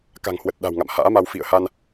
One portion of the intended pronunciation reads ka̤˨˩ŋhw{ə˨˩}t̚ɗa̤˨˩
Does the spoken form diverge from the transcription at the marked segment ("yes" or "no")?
no